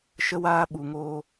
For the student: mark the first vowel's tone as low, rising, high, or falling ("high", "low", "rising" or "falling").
high